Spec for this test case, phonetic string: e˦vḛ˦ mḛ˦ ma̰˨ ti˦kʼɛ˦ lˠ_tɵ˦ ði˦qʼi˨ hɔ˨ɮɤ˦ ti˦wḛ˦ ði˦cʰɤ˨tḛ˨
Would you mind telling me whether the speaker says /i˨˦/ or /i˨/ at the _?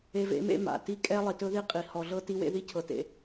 i˨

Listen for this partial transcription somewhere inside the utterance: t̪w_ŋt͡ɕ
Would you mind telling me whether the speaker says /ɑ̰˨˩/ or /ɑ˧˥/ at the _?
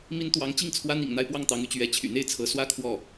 ɑ˧˥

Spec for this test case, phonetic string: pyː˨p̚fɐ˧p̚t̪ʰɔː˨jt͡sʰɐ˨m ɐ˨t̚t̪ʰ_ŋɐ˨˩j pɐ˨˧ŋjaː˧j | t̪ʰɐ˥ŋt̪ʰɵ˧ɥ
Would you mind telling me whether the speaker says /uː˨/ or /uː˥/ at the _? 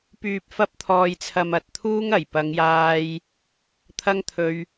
uː˥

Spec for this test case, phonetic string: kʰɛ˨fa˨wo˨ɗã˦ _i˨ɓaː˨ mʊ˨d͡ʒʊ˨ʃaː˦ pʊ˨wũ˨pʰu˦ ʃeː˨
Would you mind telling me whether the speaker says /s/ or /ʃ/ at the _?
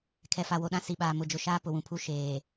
s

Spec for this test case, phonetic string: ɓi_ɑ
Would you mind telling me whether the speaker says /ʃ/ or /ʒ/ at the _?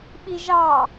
ʒ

